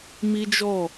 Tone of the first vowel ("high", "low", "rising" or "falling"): high